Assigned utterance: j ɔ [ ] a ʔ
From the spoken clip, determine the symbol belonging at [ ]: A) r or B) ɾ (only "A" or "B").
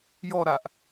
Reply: B